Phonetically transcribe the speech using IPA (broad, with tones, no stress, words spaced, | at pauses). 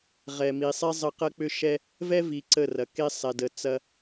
ʁɛ˨mi˨sˤe˦ zˤə˦ qɐ˦k͡pʏ˦ʃɛ˦ | vɛ˦vi˨ ǀə˦˨rɐ˨ ke˦sˤɛ˨də˨ t͡sɐ˦